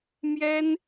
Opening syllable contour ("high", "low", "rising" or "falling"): high